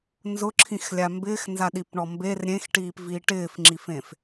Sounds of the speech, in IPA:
nzʊǁʰĩxlʲa mbɪːxnzaɗipɳɔ mber ɾʲẽxʈiːpviː ʈɪːfŋ͡ǁifẽf

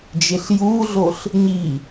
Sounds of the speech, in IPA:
d͡ʒeɬjuɮoɬ | ɲi

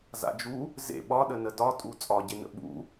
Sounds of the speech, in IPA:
za̰d͡ʒu | zḛ ɓɒɗənə dɒtʼu t͡sʼɒɟenə̰ ɓṵ

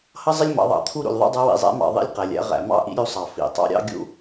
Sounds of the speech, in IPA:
hʌ˥zˤɪ˥lʲmɑ̰˩˧ðˤɑ̰˩˧ t̪ʰu˥ɾṵ˩lʲðˤṵ˥dˤʌ˧˥ wḭ˩zˤæ̰˧˥mɑ̰˩ ðˤḭ˥lʲqæ˩lʲæ̰˥ ʁæ̰˩mɑ̰˥ʔḭ˥ ɾʲu˧˥sˤɑ˩ fḭ˩˧ tˤɑ̰˧˥ɾʲɑ̰˥ɡʲṵ˥

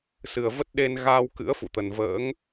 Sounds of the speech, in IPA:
sɨ˨˩ə̯və˦˥t̚ ɗe˧nɣaː˧w kɨ̰˧˥ə̯fṵ˧˨t̪ə˨˩n və̰ː˧˥ŋ

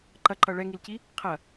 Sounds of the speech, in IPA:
ǃɐǃʌ ɭɛŋilci | qʰɐ

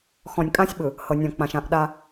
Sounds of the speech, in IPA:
xɔ̃˨nʲkʼã˦sʲɓɯ˨ | hɤ˨nʲɔ̃˨k͡pã˨ʃ ã˨ʔ ɗa˦

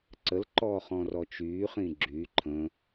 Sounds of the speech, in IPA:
ǀəlǃɔːχɔ̃rɔ t͡ʃyːχĩ ɡ͡ǁy ǃʰə̃

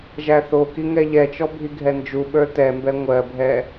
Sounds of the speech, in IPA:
ʒæθoki ŋɛʎɛt͡ʃɔ bʱiɡʱɛnd͡ʒuɓə˞ tɛmbɛ ŋʷɜbʱɛ

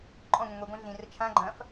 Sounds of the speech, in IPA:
ǃʼɔ̃ŋʷĩ ŋʷiɡʷɛ̃ ɮĩrə t͡ʃʰã ɡ͡ǃɐ̃f

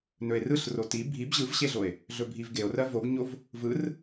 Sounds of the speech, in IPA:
nɵe̯rɯɬro ti bʱib ʑɯvɕeɮoe̯ | ɮɵbʱivɡeo̯rɜ voɡɲov | vɯr

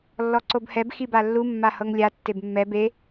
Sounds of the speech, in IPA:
lːɔǀobhɛb xibalːu mːahɤŋlʲa tːebmːɛ be

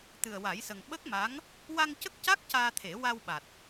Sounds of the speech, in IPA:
t̪ɨ˨˩ə̯wa˨˩˦jsə˨˩ŋ ɓə˦˥k̚ma˧˥ŋ | wa˧ŋcə˦˥k̚ca˦˥k̚ caː˧t̪ʰe˨˩˦ wa˧wɓa˨˩t̚

